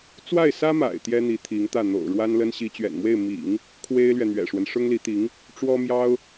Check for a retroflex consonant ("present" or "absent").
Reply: present